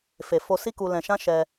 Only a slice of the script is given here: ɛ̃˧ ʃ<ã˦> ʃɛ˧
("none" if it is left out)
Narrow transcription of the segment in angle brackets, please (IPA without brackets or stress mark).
ã˦